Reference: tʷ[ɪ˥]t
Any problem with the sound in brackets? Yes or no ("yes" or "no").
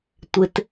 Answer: yes